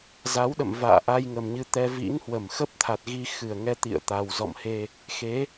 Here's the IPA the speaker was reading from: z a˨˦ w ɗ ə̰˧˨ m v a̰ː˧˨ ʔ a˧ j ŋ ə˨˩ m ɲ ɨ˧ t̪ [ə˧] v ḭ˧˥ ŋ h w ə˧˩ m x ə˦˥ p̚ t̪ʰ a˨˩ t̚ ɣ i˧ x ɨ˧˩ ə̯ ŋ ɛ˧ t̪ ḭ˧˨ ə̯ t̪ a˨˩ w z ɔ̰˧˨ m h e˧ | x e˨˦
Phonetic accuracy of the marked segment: incorrect: ɛ˧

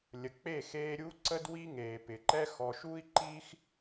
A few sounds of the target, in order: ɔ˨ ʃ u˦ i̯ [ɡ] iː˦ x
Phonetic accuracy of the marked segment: incorrect: ǃ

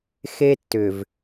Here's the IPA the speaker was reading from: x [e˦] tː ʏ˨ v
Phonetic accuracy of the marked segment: correct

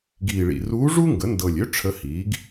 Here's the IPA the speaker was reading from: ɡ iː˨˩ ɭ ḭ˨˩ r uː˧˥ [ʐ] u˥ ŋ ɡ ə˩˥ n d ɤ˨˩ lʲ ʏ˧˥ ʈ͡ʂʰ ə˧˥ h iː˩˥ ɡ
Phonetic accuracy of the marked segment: correct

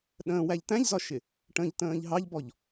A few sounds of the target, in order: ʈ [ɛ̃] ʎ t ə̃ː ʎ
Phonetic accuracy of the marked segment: incorrect: ə̃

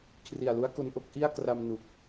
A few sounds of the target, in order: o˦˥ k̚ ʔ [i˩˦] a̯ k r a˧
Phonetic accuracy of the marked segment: incorrect: i˥˩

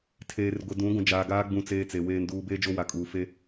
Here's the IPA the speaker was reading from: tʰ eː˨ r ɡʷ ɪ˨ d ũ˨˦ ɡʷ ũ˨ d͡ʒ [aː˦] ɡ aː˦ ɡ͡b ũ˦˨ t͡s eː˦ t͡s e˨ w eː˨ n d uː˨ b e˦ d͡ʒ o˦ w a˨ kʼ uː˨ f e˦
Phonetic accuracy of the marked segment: incorrect: aː˨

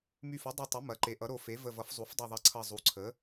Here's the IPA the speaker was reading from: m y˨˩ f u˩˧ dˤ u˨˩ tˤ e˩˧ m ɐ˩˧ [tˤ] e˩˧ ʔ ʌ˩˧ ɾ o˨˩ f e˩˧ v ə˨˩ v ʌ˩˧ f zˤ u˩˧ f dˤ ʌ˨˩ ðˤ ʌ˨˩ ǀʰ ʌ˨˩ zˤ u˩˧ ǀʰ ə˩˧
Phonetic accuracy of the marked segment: incorrect: ǃ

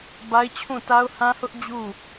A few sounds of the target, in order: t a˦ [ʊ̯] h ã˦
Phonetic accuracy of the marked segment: correct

